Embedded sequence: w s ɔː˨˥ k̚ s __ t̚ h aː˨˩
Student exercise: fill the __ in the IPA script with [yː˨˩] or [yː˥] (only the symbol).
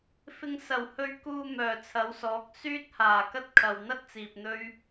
yː˥